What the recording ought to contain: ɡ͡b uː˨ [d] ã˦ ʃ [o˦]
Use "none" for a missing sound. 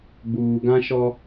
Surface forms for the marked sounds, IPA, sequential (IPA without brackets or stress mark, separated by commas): ɡ, ɔ˦